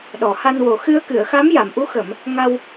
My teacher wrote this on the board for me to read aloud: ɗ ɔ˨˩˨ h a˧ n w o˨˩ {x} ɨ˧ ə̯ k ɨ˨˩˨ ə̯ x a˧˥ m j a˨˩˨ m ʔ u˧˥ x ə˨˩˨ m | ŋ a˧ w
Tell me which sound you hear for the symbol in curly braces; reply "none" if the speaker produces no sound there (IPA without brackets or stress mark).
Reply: x